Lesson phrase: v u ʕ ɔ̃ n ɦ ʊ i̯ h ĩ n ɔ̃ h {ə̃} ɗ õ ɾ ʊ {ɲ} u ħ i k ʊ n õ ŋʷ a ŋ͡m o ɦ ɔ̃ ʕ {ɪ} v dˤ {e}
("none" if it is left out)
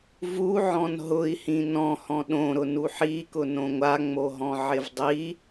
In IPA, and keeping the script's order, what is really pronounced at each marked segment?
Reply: ɔ̃, n, ɪ, i

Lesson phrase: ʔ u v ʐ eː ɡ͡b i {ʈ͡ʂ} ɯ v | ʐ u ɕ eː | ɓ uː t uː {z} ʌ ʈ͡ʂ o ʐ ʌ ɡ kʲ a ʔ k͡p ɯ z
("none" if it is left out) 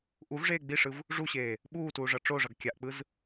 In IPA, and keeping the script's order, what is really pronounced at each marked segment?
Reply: ʂ, ʐ

